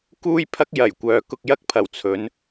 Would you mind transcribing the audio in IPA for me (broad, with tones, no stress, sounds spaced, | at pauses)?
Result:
k uː˥ j pʰ ɐ˥ k̚ j ɐ˨˩ j kʷ œː˨ k ʊ˧ k̚ j ɐ˥ k̚ pʰ ɐ˨˩ w t͡sʰ ɵ˨˥ n